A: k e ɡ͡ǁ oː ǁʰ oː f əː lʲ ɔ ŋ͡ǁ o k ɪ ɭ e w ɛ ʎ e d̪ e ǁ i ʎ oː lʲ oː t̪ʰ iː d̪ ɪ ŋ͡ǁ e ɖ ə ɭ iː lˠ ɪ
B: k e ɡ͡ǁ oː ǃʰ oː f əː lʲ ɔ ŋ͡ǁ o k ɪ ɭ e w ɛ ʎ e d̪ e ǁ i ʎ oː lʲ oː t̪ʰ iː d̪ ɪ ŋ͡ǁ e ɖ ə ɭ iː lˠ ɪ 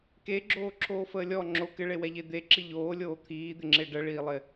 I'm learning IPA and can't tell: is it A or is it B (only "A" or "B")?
A